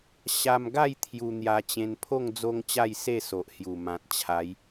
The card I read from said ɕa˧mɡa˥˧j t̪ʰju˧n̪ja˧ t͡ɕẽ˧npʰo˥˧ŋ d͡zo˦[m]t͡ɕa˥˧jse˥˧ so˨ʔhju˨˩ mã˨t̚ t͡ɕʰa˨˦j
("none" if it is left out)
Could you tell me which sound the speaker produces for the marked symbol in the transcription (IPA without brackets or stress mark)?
ŋ